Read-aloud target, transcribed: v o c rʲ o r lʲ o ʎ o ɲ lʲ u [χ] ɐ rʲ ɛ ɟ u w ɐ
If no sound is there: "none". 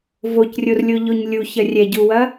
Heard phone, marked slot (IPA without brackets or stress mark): ç